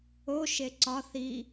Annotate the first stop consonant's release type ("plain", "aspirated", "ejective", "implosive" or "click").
click